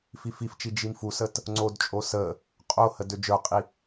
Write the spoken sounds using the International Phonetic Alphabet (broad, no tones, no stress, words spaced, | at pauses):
fifift͡ʃi d͡ʒimfusət | ŋ͡ǀodt͡ʃʼo sə | qʼohə død͡ʒə˞qʼi